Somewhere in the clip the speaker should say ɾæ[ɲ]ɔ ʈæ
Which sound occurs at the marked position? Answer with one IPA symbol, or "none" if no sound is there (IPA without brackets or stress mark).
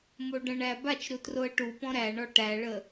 ɳ